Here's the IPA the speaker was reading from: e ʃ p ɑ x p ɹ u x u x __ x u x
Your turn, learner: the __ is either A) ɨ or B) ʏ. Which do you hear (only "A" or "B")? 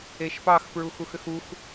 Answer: B